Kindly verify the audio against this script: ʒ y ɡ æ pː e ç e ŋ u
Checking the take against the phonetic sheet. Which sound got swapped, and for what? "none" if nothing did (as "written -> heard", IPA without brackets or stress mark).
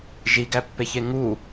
y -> i